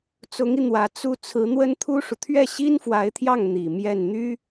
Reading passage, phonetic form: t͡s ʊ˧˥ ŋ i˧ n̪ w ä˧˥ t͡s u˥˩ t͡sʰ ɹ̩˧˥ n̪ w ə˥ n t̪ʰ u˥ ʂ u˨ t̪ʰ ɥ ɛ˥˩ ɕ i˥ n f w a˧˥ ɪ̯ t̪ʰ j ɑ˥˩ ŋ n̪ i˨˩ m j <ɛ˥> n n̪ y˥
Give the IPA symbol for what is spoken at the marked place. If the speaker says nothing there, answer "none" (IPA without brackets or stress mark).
ɛ˥˩